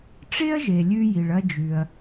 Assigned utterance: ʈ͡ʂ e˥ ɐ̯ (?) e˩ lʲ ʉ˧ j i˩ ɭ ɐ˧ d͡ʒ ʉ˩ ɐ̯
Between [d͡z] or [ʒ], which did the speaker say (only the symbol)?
ʒ